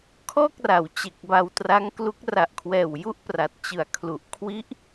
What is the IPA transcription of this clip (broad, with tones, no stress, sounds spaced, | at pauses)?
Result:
kʰ ɔː˥˩ k̚ r a˩˦ w t͡ɕ e˨˩ k̚ b a˧ w t r a˦˥ ŋ k l u˦˥ k̚ r a˨˩ ʔ kʰ w ɛː˨˩ w j u˥˩ ʔ p r a˨˩ t̚ t͡ɕ ɯ˨˩ a̯ kʰ l u˨˩ ʔ kʰ w i˦˥ ʔ